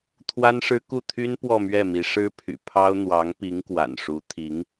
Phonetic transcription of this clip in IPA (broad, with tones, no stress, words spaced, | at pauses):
t̪ʰwa˥nʂɻ̩˥ ku˥˩t̪ʰy˥n pwɔ˥˧mɥɛ˥˩mi˧˥ ʂɻ̩˥ pʰy̰˨˩pʰɑ˥ʊ̯ n̪wɑ˧˥ŋpi˧˥ŋ kwa̰˨˩nʂu˧˥ t̪ʰi˧˥ŋ